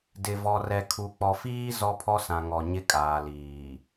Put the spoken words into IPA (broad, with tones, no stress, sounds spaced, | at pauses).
d ɪ˨ v ɔ˨ r ɛ˨ kʰ u˨ k͡p ɔ˨ f iː˦ z ɔ˦ pʰ ɔ˦ s ã˨ ŋ ɔ˨ ɲ ɪ˦ kʼ aː˨ l iː˨